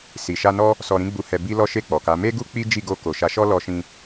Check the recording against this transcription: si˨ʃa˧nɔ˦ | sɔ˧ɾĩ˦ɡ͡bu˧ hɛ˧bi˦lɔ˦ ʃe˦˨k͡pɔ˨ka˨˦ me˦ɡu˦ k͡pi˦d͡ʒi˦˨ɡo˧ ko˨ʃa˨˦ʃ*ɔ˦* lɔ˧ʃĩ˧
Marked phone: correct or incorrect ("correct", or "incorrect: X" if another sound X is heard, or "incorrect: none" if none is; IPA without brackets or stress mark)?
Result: correct